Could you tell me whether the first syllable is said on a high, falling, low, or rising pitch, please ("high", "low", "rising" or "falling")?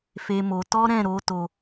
high